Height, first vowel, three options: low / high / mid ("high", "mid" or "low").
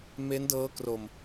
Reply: mid